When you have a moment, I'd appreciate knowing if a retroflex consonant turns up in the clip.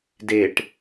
yes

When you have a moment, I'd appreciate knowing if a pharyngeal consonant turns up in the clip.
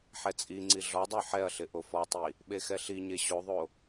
yes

